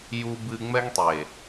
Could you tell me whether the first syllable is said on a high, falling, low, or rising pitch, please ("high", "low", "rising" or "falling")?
high